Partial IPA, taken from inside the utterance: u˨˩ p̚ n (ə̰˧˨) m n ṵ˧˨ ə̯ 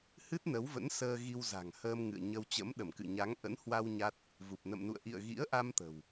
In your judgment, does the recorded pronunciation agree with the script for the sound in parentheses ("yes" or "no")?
yes